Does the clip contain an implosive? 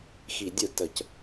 no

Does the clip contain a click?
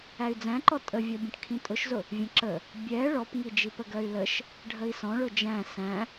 yes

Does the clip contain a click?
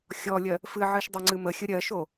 yes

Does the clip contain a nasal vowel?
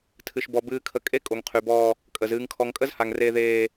no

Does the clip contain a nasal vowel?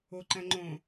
yes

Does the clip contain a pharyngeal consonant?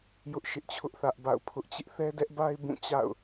no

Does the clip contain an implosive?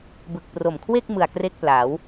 no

